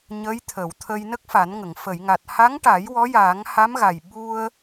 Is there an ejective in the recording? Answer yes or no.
no